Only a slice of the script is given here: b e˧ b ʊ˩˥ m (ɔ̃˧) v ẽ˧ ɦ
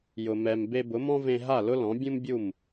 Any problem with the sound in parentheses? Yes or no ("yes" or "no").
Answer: yes